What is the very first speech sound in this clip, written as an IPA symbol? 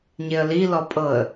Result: ɲ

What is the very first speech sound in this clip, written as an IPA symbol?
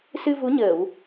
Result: s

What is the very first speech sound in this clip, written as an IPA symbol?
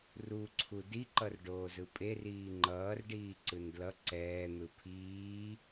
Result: r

